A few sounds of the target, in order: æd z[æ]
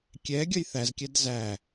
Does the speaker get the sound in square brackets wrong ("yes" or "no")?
no